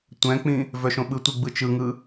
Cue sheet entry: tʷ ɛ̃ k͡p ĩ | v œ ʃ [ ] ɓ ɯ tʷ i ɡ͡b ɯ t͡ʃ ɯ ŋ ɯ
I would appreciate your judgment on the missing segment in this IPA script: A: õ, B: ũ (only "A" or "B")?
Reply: A